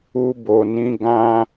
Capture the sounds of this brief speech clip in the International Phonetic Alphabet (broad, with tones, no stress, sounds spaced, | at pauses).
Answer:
u˧ b o˨ n ĩ˨˦ ɡ ã˦